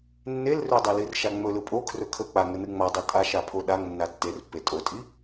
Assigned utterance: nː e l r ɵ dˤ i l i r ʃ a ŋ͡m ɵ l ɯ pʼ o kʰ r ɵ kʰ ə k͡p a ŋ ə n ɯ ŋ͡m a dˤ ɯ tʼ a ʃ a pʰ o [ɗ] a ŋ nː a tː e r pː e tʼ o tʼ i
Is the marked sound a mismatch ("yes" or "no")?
no